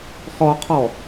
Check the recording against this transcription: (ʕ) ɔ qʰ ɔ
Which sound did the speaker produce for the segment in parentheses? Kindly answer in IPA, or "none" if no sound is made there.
χ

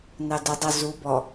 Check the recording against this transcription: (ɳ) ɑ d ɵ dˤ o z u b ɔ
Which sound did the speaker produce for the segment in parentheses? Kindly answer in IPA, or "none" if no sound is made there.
n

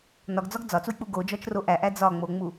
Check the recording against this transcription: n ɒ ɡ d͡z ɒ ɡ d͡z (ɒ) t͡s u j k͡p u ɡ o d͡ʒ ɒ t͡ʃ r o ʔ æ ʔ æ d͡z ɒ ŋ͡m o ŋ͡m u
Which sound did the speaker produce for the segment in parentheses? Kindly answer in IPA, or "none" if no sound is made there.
ɒ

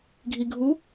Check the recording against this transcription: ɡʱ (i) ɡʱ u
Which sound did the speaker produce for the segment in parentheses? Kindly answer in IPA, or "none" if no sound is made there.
i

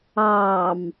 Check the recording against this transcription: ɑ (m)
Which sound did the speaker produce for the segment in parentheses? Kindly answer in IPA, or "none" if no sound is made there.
m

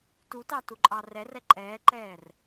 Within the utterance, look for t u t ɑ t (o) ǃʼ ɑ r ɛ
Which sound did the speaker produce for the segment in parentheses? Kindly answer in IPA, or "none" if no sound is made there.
u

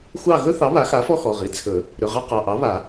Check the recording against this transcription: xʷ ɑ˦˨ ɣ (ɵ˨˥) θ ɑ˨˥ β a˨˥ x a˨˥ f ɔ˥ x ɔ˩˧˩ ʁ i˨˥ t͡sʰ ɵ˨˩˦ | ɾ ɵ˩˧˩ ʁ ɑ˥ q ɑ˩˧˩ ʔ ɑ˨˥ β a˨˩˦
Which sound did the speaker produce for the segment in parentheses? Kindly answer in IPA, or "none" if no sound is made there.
ɵ˥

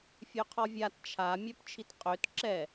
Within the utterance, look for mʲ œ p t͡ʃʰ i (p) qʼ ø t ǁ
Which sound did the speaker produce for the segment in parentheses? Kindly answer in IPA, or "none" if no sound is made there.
t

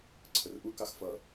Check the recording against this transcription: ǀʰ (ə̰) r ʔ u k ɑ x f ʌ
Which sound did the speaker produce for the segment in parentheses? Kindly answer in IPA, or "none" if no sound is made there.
ə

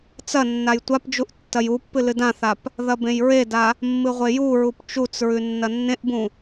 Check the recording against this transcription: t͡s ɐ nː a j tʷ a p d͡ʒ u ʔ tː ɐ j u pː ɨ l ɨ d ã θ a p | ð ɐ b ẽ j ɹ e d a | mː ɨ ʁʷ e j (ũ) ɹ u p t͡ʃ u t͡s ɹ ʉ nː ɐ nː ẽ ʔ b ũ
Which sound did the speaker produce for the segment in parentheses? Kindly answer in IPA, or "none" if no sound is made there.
u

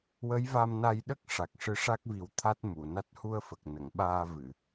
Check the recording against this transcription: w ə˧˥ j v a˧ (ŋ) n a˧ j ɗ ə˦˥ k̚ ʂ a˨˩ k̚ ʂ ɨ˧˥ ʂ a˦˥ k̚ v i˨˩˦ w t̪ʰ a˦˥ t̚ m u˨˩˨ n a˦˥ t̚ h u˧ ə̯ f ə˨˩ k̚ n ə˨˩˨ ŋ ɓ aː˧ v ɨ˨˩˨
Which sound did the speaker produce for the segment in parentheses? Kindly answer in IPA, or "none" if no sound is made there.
m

